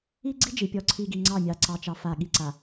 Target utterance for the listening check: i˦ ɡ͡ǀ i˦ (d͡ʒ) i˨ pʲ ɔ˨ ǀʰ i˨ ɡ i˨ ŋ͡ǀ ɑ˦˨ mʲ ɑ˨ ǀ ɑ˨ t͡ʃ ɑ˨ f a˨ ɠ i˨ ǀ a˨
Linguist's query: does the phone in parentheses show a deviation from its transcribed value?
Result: no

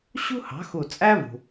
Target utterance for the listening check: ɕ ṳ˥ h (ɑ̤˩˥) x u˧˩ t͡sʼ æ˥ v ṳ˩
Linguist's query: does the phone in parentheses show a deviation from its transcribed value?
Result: no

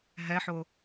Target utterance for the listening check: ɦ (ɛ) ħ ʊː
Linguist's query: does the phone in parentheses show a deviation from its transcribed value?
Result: no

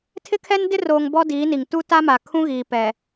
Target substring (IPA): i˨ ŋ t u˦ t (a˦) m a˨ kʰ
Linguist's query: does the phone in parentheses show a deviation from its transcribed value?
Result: no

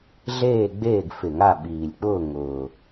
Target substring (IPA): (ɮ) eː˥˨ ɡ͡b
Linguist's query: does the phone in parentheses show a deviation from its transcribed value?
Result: no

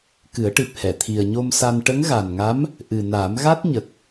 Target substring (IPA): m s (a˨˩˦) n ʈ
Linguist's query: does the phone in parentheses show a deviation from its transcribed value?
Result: yes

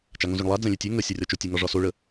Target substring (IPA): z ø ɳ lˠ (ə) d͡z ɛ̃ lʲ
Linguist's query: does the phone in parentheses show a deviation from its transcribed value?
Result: yes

